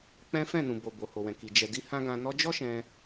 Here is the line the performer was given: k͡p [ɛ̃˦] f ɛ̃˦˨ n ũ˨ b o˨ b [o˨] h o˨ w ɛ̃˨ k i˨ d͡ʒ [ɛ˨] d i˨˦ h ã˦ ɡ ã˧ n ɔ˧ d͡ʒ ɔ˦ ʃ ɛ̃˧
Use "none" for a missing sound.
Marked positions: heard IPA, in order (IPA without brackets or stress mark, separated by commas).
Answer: ɛ̃˦, o˨, ɛ˨